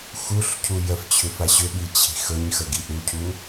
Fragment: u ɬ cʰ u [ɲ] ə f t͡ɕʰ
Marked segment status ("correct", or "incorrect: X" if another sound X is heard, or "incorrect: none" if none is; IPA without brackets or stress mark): incorrect: j